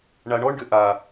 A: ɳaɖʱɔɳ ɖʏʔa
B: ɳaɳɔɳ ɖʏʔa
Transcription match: B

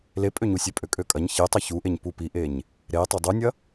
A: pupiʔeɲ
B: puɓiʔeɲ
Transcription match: A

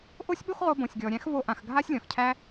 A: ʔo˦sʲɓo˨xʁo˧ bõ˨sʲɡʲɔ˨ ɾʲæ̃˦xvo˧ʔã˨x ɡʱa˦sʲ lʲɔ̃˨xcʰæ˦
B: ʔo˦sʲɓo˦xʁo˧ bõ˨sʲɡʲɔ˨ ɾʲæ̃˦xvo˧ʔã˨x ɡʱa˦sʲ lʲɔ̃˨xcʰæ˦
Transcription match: B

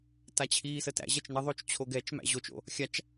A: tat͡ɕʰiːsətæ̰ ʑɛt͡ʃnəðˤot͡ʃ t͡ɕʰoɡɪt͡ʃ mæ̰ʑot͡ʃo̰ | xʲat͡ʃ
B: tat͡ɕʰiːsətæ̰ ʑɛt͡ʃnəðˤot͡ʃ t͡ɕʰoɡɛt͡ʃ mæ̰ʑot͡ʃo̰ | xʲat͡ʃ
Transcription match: B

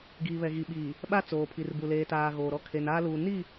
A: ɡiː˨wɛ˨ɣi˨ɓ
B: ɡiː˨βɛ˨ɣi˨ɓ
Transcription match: B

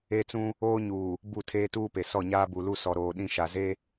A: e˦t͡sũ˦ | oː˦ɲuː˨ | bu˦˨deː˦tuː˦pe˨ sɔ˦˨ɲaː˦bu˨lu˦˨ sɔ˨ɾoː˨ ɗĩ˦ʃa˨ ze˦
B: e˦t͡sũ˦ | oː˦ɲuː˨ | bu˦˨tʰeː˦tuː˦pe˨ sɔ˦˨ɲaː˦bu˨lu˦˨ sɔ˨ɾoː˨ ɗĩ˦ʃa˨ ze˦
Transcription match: B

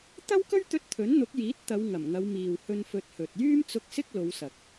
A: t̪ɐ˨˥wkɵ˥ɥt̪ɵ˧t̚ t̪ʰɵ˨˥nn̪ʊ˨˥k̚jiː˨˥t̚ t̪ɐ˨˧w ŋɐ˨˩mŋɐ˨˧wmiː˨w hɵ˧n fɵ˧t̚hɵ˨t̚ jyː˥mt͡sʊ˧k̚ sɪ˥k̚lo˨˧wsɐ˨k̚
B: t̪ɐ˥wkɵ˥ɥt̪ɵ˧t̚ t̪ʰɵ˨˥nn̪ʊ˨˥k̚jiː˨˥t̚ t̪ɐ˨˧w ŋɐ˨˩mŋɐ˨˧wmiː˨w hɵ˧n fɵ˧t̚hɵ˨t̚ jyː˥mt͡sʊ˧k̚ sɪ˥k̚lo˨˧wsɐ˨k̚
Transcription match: B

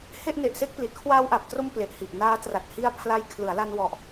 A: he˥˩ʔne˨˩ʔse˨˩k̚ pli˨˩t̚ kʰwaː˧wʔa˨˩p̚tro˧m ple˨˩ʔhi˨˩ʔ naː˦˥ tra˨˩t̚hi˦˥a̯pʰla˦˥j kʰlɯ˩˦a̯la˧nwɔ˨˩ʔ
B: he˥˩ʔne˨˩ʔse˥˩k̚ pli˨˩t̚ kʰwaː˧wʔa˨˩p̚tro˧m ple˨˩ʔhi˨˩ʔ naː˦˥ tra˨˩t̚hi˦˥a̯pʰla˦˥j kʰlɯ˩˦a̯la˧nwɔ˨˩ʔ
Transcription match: B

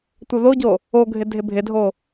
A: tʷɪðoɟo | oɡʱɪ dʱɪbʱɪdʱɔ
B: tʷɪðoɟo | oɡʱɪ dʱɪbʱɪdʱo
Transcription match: B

